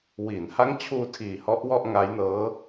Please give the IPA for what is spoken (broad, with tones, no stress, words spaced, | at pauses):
wiː˩˦nha˦˥ŋt͡ɕʰuː˧ tʰiː˨˩hɔ˦˥ʔwɔ˥˩ʔ ŋa˦˥jnɤː˦˥